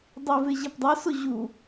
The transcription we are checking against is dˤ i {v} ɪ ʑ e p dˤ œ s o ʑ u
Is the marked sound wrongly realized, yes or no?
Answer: no